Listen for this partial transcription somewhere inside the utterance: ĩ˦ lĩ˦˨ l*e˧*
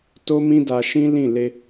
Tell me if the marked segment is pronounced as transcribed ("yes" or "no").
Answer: yes